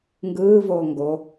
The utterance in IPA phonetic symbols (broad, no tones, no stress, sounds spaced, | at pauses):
ŋ ɡ ɯː v oː ŋ ɡ o